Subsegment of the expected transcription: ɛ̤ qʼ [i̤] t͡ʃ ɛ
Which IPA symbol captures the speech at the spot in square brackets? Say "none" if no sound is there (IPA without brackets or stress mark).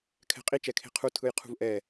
i